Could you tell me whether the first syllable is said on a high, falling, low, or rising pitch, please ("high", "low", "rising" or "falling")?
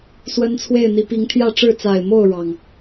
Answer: high